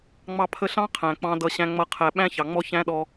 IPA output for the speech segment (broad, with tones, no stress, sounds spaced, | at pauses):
ŋ͡m ɑ˧ pʰ ə˧ ɬ ɑ̃˦ qʰ æ̃˨ k͡p ɑ̃˧ d ʌ˧ ɕ æ̃˦ ŋ͡m ʌ˦ qʰ æ˧ ɓ æ̃˦ ç ɑ˨ ŋ͡m ɔ˦ ç æ̃˦ ɗ ɔ˦